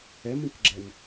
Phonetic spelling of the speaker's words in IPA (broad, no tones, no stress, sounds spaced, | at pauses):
ɛ m ĩ k ɡ͡ǁ ɛ n